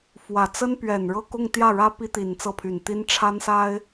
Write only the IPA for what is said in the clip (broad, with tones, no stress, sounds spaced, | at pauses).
f w ä˨˩ t͡s ə˥ n p ɥ ɛ˨˩ n ɻ ɤ˥˧ k ʊ˥˧ ŋ t̪ j ä˥˩ ɻ ä˥ p i˥ t̪ i˨˩ n t͡s ɤ˥˩ pʰ y˨˩ n t̪ i˥ n ʈ͡ʂʰ a˥ n s a˥ ɪ̯